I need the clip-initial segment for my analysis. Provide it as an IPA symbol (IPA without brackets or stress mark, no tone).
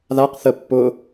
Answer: ð